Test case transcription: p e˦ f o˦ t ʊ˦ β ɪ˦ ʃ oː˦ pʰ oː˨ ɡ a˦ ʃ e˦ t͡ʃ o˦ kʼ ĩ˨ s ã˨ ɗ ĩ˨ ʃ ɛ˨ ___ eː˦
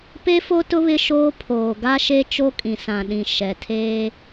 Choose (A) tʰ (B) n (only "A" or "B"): A